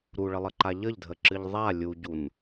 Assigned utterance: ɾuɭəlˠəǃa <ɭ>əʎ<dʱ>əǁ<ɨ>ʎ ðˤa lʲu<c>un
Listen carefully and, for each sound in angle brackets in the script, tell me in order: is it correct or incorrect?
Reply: incorrect, correct, correct, incorrect

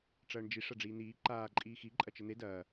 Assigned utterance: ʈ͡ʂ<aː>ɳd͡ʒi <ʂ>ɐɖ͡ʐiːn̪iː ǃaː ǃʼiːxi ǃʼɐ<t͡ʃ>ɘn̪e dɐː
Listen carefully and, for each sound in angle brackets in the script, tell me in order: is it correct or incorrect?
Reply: incorrect, correct, correct

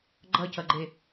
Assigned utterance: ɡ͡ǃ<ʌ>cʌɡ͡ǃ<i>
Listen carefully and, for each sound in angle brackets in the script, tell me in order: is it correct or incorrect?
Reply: correct, incorrect

